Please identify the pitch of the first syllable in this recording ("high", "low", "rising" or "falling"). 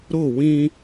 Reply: falling